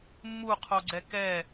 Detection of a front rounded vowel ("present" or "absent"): absent